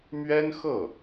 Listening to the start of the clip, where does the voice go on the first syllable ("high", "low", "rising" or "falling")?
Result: high